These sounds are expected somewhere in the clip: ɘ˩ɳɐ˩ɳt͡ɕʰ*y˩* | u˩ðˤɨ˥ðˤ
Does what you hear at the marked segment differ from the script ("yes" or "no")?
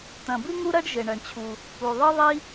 yes